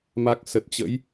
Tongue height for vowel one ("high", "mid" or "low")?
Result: low